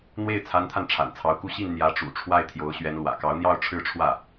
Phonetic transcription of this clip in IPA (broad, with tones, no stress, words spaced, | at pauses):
n̪we˥˩ɪ̯t͡sʰa˧˥nt̪ʰa˧n ʈ͡ʂʰa̰˨˩nt͡sʰɑ˧˥ʊ̯ku˥˧ ɕi˥˩n n̪jä˧˥ʈ͡ʂṵ˨˩ʈ͡ʂʰwa˥˩ɪ̯ t̪ʰjo˧˥ʊ̯ɕɥɛ˧˥nlwä̰˨˩ kɑ˧˥ʊ̯n̪jɑ˥˧ʊ̯ ʈ͡ʂʰɻ̩˥˧ʈ͡ʂʰwä˥˩